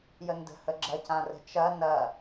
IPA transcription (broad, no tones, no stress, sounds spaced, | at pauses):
j ə n d ə̤ h ə ɡ͡ǁ ɐ c ã r ə̤ t͡ʃ ɐ n ɐ